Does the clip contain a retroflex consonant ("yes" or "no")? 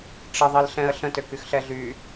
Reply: yes